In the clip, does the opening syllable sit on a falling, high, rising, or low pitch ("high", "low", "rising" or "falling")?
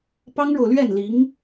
high